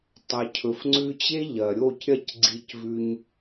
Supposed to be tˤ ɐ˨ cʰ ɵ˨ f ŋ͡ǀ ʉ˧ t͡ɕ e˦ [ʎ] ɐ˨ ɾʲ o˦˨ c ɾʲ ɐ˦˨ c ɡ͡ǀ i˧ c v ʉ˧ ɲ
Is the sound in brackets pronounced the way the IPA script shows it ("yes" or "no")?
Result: yes